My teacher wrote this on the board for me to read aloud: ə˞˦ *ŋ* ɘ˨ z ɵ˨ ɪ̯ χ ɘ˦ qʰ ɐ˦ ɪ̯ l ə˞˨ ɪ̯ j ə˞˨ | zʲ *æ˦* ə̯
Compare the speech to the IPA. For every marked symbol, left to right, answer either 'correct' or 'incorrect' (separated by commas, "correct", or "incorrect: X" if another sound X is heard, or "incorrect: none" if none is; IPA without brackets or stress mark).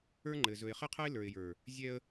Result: incorrect: ŋ͡ǃ, incorrect: ɛ˦